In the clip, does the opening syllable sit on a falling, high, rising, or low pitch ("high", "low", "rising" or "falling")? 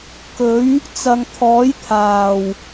rising